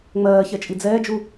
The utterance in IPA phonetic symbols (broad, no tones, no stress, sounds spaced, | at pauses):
ŋ͡m ɜː ç ɛ t͡ʃʼ i d͡z ɛː d͡ʒ u